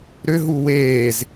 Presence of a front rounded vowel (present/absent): present